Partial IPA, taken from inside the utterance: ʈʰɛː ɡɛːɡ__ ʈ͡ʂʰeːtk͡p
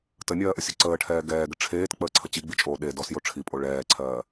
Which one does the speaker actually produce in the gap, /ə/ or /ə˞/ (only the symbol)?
ə